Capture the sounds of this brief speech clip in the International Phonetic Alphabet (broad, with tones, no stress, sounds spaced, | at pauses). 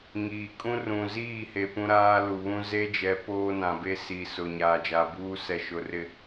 ŋ iː˨ kʼ ũ˦ r ũ˨ z iː˦˨ h e˨ p ũ˦ ɾ aː˦ l u˨ β ũ˦ z e˦ d͡ʒ ɛ˨˦ p oː˦ n ã˨ b e˦ s i˨ s ʊ˨ ɲ aː˨ d͡ʒ a˨ b uː˦ s ɛ˨ ʃ ʊ˨ r ɪ˨